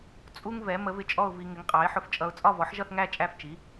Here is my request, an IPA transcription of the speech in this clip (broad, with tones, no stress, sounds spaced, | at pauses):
t͡sʼ u˥ ŋ v ɛ˩˥ m ə˩˥ v ɪ˧ t͡ʃʼ ɔ˥˧ ʊ̯ v i˧ ŋ ɪ˩˥ ŋ qʼ ɑ˩˥ ɪ̯ ħ ʊ˧ f t͡ʃʼ ʌ˧ ʊ̯ t͡sʼ ɒ˥˧ v ɔ˩˥ ħ ʒ ʌ˥˧ θ ŋ æ˥˧ t͡ʃʼ æ˥˧ f t͡ʃ i˩˥